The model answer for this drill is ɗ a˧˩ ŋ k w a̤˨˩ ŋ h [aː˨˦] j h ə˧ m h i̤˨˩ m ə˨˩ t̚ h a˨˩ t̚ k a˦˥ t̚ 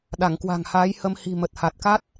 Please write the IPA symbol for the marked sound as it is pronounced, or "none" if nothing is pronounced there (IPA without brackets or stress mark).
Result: aː˨˦